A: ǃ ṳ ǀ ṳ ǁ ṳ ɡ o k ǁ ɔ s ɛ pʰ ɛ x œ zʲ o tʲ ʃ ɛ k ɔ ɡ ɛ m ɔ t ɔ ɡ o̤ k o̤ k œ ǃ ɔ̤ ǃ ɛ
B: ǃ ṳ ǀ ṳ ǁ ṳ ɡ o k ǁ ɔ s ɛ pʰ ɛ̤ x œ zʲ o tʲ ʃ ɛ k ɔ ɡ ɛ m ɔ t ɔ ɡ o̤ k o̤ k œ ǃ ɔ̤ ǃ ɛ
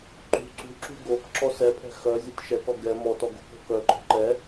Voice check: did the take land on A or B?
B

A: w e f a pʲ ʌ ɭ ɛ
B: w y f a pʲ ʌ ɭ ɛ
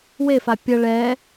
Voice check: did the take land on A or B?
A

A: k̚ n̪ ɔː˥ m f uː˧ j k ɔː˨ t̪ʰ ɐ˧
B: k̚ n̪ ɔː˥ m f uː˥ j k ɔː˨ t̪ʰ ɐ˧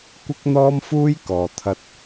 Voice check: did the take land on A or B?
B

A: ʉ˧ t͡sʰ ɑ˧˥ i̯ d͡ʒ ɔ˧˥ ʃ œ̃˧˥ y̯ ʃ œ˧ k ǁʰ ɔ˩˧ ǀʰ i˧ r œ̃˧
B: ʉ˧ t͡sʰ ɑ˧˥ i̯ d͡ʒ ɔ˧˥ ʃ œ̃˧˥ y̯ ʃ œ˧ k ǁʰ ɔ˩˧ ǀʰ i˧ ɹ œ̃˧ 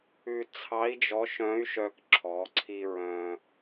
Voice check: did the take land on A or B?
B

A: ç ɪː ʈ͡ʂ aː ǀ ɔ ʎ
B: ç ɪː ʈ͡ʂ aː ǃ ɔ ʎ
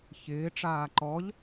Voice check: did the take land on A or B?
B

